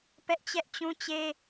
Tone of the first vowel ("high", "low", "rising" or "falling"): high